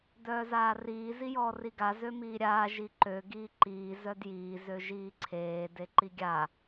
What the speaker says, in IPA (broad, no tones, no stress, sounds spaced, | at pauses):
d œː z aː r iː z i j ɔː r i ɡ a z ø m iː ɾʲ aː ʒ i ǃ ø ɡ iː ǃ iː z œ d j iː z ø ʒ iː ǀʰ eː d e ǃ i ɡʲ a